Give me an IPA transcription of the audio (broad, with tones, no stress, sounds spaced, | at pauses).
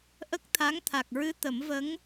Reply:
ʔ ə˦˥ k̚ t̪ʰ a˧˥ ŋ t̪ʰ a˨˩ k̚ ɹ ɨ˧˥ t̪ ə˨˩˦ m v ə˧˥ ŋ